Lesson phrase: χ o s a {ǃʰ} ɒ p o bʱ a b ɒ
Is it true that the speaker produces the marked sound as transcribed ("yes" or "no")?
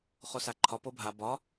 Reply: yes